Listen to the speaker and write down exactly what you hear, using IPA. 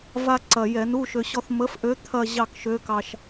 v a˧ ǀ ɐ˨˩ j ɛ˧˩˧ n u˧˥˧ ʃ ø˧ ɕ ɔ˥˧ θ m ə˧˥ f ʔ ø˧˥ t̪ʰ ɐ˥˧ ʑ ɑ˥˧ k ʃ ø˧˥ k ɑ˧ ʃ

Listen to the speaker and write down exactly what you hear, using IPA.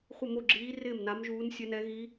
χʷ ɪ˥˨ m o˥˨ ɡ͡ǁ iː˧˥ r ɪː˥˨ m n a˧˥ m ʒ uː˧˥ n sʲ ɛ˧˥ n ɛ˧˥ ɣ i˧˥

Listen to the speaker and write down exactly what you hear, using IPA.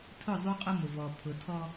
tʰ ʊ˦˨ zˤ u˦ qʼ ʊ˦ m ʊ˨ v ɔ˨ pʰ ʊ˨ tʰ ɔ˦

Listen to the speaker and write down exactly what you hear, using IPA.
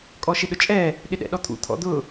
kʼ ɔ ʃ ɪ ɗ ʊ t͡ʃʼ ɛ | ɗ ɪ ɗ ɛ̰ ɗ ɔ t̪ʰ ṵ t̪ʰ ɔ̰ d̪ ʊ

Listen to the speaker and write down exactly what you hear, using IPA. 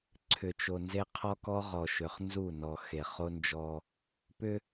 ǀʰ ʏ˨ t͡ʃ o˨ n z e˦ qʰ ɔ˦ k ɔ˦ ʁ ɔ˨ ʃ ʏ˨ χ n z u˦˨ n ɔ˨ x e˨ χ o˦ n d͡ʒ ɔ˦ | p ʏ˦

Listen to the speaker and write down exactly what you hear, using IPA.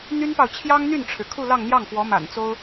n̪ y˥ n p ɑ˨ ʊ̯ t͡ɕʰ j ɑ˥ ŋ n̪ y˥˩ n ʈ͡ʂʰ ɻ̩˩ kʰ u˥˧ l ɑ˥˧ ŋ n̪ j ɑ˥˩ ŋ f w ɔ˧˥ m a̰˨˩ n t͡s o˥ ʊ̯

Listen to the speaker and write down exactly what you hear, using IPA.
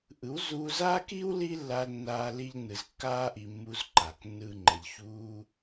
ʔ ɯ˨˦ w z uː˧ z aː˦ k iː˦ w l iː˦ lː aː˧ l nː aː˧ l i˧ ʎ n ɯ˨ z kː aː˧ ʔ i˨ mː uː˧ z ǃ a˨ k nː ɯː˧ ŋ͡ǃ ɛ˨ ʎ ç uː˦

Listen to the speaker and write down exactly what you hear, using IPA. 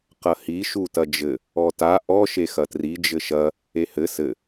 q ɐ h i ʃ u t ɐ d͡ʒ ɘ | ɔ t a ʔ ɔ ʃ e x ɐ t r i d͡ʒ ɘ ʃ ɐ | e h ɘ s ɘ

